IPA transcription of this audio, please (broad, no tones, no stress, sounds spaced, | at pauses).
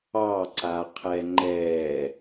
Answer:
ɑ ǀ a qʰ ɛ ŋ͡ǃ ɛ